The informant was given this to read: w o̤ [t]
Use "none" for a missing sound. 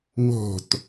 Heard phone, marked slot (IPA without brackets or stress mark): t